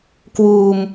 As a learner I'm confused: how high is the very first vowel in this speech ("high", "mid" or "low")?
high